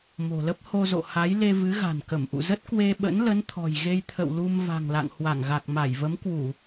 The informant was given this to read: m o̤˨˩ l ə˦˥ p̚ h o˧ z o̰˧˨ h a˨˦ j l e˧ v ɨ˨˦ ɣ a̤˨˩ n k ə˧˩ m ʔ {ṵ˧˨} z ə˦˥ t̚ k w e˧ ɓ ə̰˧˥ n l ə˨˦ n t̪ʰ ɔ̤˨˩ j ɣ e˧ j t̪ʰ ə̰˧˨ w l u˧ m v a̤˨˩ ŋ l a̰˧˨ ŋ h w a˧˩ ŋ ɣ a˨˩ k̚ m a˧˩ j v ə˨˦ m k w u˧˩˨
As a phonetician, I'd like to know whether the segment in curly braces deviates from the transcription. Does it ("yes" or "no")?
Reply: no